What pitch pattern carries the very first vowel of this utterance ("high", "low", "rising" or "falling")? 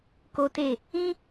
high